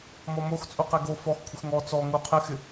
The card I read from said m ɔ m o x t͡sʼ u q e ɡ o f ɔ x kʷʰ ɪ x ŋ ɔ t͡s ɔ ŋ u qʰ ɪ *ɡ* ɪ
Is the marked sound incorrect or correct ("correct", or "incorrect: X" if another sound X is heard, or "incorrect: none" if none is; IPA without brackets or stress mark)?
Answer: incorrect: x